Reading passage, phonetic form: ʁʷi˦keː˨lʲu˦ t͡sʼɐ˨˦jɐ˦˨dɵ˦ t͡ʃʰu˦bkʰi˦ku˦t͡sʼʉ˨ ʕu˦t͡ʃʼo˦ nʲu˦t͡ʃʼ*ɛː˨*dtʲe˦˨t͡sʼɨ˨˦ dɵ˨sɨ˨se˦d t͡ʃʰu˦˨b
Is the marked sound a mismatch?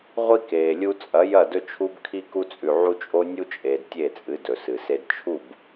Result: yes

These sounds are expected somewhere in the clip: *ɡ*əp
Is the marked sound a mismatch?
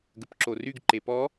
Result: no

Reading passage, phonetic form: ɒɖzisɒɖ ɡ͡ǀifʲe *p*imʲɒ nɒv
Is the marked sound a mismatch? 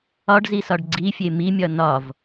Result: yes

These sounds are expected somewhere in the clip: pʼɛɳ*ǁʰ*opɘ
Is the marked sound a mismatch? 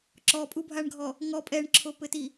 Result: no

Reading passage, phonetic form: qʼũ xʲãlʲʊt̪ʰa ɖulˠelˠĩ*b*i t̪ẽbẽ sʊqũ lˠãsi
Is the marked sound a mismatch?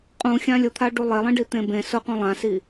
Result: yes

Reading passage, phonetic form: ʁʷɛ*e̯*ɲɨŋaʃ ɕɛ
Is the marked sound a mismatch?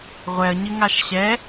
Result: yes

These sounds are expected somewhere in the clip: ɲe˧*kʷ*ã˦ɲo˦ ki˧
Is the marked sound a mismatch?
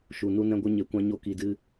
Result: no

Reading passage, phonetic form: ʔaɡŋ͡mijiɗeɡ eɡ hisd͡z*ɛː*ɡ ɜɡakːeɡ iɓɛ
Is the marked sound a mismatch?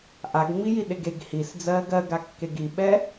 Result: yes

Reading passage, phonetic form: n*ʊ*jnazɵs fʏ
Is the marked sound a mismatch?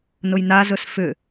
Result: no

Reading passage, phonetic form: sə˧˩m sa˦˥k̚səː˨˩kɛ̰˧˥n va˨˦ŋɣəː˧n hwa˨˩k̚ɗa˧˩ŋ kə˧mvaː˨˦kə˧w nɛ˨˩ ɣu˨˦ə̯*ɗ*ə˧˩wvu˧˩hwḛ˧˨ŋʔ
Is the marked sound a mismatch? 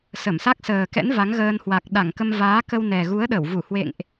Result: no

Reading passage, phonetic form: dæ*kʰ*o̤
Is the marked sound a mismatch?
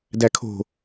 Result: no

